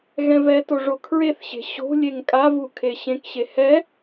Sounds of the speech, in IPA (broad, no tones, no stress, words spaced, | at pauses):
ɣɛ̃vɛto ʐokʰɹeθɕe̤ ɕo̤lʲeŋ kʼavu kʰeɕẽkɕe hɛ